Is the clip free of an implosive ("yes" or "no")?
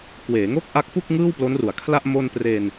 yes